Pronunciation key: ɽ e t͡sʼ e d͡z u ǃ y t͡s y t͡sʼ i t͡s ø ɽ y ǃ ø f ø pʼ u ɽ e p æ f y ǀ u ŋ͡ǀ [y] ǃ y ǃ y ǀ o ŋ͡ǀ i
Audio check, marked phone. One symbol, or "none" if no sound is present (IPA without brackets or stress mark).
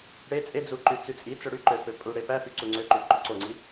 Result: ø